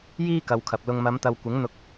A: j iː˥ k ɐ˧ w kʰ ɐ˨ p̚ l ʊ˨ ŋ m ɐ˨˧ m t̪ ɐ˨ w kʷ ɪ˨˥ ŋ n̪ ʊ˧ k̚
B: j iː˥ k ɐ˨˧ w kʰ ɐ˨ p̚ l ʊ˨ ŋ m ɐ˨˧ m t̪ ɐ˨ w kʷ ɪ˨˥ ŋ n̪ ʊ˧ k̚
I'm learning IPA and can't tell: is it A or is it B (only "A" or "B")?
B